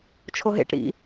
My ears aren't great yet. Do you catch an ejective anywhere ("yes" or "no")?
no